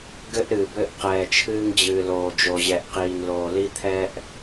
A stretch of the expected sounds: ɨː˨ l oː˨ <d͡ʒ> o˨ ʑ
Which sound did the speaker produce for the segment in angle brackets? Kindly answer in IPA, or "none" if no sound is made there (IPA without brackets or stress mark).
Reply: d͡ʒ